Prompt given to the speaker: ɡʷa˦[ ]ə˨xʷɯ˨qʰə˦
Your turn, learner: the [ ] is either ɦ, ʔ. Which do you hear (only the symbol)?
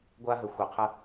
ɦ